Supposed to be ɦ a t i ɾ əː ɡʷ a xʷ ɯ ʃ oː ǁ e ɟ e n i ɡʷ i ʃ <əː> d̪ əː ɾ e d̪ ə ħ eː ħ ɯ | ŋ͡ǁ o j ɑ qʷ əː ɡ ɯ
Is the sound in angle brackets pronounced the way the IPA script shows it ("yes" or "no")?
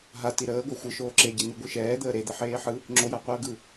no